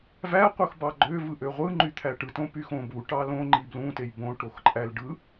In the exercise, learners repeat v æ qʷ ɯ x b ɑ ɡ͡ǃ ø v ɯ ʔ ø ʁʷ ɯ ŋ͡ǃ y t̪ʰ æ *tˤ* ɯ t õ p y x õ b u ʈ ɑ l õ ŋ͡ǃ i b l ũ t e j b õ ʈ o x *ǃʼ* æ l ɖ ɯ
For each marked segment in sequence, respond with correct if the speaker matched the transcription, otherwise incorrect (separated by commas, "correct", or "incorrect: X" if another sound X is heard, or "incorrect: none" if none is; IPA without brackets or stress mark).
incorrect: ʈ, correct